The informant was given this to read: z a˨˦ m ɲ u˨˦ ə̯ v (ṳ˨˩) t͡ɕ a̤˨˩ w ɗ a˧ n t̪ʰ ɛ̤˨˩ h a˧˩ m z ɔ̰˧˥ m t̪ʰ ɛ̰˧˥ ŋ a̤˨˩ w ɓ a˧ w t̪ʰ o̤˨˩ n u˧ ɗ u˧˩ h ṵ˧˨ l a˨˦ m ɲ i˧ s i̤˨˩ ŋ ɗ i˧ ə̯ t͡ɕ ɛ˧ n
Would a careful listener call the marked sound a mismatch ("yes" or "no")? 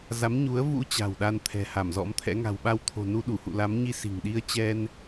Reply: yes